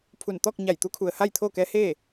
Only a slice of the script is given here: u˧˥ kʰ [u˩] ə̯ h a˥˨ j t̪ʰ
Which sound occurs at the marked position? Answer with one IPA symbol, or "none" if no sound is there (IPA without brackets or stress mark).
u˩